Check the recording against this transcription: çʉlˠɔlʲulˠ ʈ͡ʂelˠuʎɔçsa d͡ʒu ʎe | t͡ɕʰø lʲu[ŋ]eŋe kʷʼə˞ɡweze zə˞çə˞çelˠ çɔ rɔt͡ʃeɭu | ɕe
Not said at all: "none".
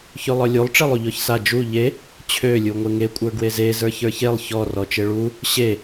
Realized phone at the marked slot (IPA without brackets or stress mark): ŋʷ